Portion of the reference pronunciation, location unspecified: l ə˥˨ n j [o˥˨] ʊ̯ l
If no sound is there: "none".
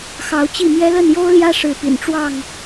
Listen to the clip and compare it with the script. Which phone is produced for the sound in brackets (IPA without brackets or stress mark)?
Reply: o˦